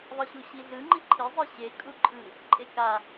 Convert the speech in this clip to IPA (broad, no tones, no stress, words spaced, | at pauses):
ðˤʌɕuɕiɮɯ ŋ͡ǃiǃʰi zˤɯɕe kʼuǃʼɯ | ǃʼeka